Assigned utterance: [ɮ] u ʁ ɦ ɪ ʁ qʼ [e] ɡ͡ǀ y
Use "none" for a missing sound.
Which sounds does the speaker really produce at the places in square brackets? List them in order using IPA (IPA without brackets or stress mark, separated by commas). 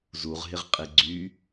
z, e